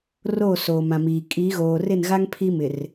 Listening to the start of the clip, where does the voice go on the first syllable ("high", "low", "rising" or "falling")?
falling